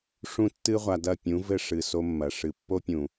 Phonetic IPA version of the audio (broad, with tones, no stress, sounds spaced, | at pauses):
ʂ ũ˦ tː ɨ˦ ʁʷ a˨ d ɐ˦˨ pʲ ũ˨˦ v ɘ˦ ʂ ɨ˨ s o˦ mː ɐ˨ ʂ ɨ˨ pː o˦ pʲ ũ˨